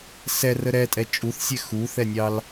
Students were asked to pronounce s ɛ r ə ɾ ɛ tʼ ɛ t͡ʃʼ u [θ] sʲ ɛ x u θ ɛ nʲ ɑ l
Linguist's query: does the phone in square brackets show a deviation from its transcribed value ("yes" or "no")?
no